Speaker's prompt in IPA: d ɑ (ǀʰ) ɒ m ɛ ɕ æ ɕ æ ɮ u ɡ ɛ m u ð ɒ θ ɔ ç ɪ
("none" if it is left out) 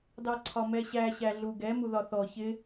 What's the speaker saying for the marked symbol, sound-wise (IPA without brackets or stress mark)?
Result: ǀʰ